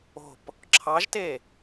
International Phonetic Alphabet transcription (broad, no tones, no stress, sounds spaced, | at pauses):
o̤ p | ǁʰ ɑ ʒ t e